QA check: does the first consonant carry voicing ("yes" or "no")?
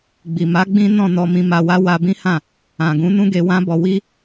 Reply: yes